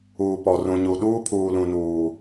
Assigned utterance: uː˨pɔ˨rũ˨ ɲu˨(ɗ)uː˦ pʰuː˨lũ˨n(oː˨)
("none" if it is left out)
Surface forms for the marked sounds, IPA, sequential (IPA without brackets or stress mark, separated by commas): ɗ, uː˨